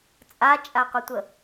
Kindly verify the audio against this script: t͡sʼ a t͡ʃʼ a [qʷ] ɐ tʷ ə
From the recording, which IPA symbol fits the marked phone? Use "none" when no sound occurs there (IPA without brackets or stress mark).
qʷ